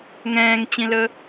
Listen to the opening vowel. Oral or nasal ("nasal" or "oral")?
nasal